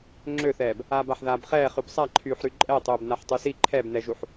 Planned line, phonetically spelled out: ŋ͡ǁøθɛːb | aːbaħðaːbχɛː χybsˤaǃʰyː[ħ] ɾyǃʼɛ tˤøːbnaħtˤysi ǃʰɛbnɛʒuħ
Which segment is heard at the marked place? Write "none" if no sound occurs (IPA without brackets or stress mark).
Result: ħ